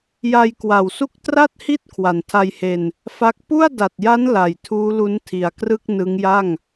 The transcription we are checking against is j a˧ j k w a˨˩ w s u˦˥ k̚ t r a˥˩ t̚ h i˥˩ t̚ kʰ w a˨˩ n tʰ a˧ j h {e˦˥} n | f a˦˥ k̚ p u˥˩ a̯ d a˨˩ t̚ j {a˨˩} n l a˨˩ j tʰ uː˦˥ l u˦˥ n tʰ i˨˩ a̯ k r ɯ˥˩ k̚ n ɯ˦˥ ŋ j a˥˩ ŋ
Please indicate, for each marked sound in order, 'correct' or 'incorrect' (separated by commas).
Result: incorrect, incorrect